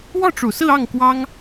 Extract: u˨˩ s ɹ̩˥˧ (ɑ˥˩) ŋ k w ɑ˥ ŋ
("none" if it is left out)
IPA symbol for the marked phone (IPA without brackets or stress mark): ɑ˥˩